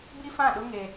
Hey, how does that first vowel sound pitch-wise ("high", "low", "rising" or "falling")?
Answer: high